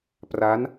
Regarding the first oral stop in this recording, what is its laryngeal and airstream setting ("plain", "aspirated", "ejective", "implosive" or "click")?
plain